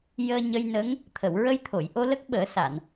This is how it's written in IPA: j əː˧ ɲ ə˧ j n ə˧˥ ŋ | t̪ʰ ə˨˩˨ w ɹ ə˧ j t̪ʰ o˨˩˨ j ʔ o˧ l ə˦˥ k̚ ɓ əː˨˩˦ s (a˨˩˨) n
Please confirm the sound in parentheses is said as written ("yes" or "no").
yes